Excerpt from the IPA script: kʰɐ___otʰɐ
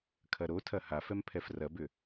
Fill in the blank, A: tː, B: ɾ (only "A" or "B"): B